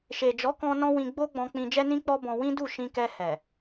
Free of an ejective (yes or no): yes